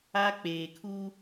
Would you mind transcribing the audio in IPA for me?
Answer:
a˦k͡peː˨kʰu˦

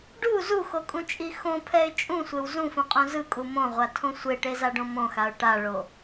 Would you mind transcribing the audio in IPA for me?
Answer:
ɖu zuxokʼũt͡ʃʼi xõpʰɛɪ̯ t͡ʃʼũsʷew zũfũqʼõ zɯkʼu mõʁʷatʰõ sʷeʈezaɖõ mõxaʊ̯ ʈaɭo

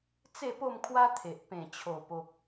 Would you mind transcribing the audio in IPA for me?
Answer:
t͡se˥˧po˥˧mkʰwa˦ t̪ʰe˨ʔ pẽ˨˩t͡ɕʰo˨˩ po˨k̚

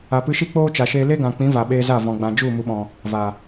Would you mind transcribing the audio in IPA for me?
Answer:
a˨pɨ˧ʃi˦ k͡poː˦t͡ʃa˨ʃeː˧ le˦ɡã˨k͡pĩ˨˦ va˨ɓeː˧za˦˨ vɔ̃˨ɡ͡bã˨d͡ʒu˦˨ mu˨ɓɔ̃˨ | va˨

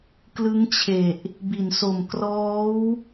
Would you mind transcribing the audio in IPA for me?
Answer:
klɯ˦˥ŋt͡ɕʰe˨˩ʔ | bi˨˩nso˨˩m krɔː˦˥w

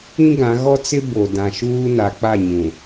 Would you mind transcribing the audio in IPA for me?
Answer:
ĩ˦ ɡã˨˦ɣɔ˦t͡sɪ˦ bo˨dã˨ʃuː˦na˨˦ k͡pa˦˨ɲũ˨

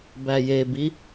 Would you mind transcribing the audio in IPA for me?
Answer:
bæjebi

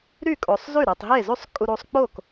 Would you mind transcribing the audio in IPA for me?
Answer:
ɾy˥˩ kʼo˨sˤzy˥˩ɾe˨tˤ ɦe˥˩zy˥˩sˤ kʼu˨ɾu˨sˤ k͡po˥˩k

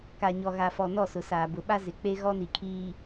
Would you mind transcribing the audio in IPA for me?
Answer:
ka˨ɲɔ˨ɣa˨fɔ˨ nɔ˦˨sʊ˨saː˨ bʊ˨ɓa˦ zɪ˨k͡pe˦ ɣɔ˦ni˨kʰiː˨

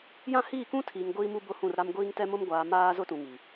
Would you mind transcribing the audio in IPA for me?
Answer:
jã˦hiː˦˨ kũ˦tʰiː˨ŋ ɡʷiː˦ mu˦bʊ˦hũ˦˨rɾa˦m ɡʷiː˦ŋtɛ˦mʊ˦m ɡʷaː˨ maː˦ zʊ˦tũ˨ŋi˨

